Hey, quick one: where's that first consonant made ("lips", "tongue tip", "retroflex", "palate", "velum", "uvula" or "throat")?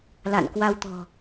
tongue tip